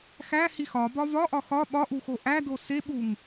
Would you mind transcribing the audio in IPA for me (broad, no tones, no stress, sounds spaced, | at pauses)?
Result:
x æ h i x ɒ b ɒ v ɒ ʔ ɒ x ɒ ɓ ɒ ʔ u x o ʔ æ d o s e ɓ u ŋ